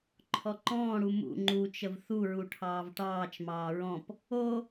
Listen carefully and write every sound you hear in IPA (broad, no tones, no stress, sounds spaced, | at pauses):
ǃʰ ɔ ǃ ɔ̃ː ɽ u m ṵ ŋ͡ǃ u t͡ʃ ə v θ u ɹ u ʈʰ ɑː v ʈ ɑː t͡ʃ m ɑː ɹ ɔ̃ p | o